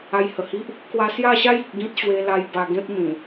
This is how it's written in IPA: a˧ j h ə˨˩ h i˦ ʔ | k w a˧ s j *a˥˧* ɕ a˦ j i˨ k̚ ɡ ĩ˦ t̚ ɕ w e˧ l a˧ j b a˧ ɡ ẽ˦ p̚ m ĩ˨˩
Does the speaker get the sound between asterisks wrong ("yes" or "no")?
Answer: no